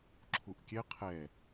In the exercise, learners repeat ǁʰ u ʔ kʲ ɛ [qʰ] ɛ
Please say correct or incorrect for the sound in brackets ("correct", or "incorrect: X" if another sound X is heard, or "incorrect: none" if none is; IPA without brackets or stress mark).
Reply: correct